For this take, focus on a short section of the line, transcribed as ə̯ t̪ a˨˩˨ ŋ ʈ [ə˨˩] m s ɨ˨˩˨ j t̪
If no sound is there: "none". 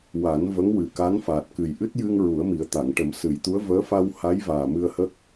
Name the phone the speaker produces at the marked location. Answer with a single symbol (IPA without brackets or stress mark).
ə˨˩˦